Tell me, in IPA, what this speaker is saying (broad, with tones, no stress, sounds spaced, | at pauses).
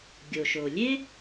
ɡʲ o˩ ʃ o˩ lʲ e˥